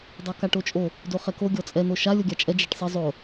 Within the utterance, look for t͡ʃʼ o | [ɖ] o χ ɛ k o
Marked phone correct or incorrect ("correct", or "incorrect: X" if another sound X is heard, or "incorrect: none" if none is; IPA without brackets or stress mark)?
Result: incorrect: d